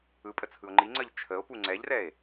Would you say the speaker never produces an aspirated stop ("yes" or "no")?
no